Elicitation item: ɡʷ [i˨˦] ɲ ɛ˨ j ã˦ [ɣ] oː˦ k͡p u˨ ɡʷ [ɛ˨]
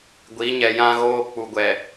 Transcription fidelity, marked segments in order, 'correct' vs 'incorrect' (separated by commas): correct, correct, correct